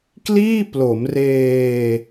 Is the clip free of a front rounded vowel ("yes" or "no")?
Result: yes